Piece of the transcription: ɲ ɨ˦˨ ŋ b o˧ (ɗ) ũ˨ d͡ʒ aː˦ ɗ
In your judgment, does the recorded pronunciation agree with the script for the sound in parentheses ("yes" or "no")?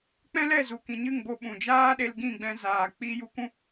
no